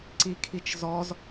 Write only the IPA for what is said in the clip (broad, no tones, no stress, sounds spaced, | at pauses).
ǀ i kʰ i t͡ʃ z ɔ z